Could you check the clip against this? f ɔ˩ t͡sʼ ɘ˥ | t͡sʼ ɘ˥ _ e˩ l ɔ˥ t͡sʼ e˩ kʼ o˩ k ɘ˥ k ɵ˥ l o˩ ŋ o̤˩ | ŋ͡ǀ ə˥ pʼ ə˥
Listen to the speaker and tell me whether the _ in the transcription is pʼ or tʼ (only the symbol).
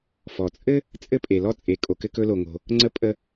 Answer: pʼ